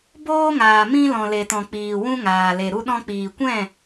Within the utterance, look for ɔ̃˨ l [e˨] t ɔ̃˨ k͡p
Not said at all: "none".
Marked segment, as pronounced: e˨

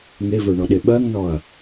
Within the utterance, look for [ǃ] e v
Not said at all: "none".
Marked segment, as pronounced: ŋ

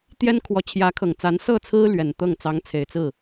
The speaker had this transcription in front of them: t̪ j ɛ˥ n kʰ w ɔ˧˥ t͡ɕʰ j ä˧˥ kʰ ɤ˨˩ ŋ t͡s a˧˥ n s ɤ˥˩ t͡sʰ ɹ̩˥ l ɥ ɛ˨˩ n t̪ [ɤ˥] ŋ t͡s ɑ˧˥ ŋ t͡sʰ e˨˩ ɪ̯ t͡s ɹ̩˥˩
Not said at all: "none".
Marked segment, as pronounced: ɤ˥˩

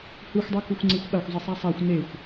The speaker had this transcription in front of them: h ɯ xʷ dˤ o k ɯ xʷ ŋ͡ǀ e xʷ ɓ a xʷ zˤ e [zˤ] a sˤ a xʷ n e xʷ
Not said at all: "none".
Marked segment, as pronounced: sˤ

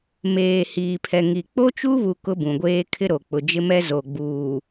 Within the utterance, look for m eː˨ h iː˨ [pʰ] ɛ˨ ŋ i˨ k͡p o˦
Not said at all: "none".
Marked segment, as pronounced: pʰ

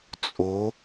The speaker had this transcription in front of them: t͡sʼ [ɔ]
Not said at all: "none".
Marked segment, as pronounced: o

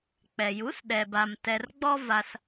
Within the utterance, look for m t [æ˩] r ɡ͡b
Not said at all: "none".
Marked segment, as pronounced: ɛ˩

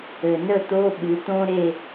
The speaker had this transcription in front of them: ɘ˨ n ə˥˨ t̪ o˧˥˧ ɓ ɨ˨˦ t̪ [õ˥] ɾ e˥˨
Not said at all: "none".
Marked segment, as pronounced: õ˥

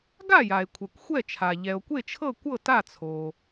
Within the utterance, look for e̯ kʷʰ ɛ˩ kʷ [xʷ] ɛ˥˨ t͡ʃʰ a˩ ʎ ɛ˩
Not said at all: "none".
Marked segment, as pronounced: xʷ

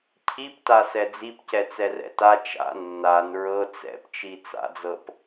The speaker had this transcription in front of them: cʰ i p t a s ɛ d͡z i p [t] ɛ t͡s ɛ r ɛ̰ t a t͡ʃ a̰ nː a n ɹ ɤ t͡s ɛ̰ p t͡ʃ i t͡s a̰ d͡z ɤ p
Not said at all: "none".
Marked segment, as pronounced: c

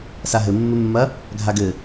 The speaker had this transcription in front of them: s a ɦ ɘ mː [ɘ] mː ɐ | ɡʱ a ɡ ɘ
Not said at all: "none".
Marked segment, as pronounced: ɘ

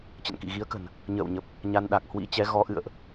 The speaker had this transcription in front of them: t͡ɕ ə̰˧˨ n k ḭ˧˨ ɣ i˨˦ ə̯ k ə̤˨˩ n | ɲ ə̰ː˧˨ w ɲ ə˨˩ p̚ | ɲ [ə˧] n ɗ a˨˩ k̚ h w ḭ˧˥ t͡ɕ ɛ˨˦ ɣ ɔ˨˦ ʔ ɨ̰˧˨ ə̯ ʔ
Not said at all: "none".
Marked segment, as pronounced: a˧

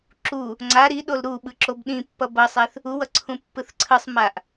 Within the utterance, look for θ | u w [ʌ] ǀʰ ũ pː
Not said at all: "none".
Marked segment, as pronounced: ʌ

